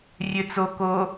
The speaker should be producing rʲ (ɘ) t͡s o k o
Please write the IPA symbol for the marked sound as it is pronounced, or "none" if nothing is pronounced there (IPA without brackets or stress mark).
ø